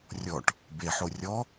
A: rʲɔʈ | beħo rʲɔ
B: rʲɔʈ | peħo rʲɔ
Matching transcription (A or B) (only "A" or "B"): A